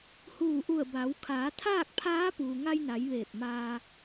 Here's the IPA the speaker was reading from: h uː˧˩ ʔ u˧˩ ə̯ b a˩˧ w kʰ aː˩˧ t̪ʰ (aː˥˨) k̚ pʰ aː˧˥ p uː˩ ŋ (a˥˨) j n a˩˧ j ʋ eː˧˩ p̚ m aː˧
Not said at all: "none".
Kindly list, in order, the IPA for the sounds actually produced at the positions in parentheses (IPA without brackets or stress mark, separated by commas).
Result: aː˥˨, a˧